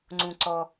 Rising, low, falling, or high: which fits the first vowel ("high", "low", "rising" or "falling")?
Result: low